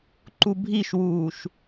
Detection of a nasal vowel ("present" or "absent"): absent